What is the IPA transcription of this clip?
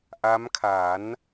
ʔ a˦˥ m kʰ a˩˦ n

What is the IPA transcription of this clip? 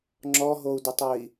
ŋ͡ǁ ɔ ɦ o u̯ d ə tˤ ø i̯

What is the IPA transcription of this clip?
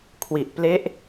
kʰ w i˨˩ ʔ p l e˦˥ ʔ

